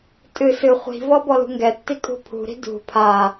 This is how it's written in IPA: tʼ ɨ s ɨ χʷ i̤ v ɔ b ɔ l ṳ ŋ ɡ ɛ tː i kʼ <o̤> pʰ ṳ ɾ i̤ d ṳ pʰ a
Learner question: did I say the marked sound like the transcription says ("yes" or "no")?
no